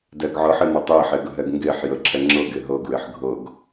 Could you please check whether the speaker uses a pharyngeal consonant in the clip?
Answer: yes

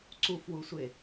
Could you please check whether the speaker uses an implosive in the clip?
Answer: no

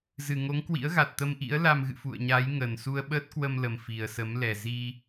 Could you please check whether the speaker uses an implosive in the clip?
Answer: yes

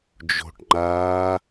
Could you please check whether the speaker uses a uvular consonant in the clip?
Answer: no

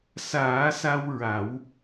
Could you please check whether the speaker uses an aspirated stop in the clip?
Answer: no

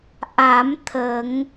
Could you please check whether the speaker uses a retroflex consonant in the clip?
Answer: no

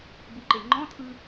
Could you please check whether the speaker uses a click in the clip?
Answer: yes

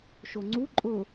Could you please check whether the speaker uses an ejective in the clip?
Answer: yes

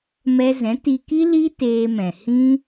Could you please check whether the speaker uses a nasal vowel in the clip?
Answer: yes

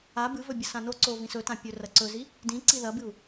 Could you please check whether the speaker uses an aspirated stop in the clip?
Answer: no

